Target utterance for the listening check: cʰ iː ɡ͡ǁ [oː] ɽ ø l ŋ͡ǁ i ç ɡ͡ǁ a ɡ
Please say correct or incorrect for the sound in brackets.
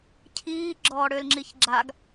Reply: incorrect